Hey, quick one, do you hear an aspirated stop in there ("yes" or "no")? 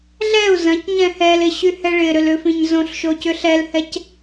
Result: no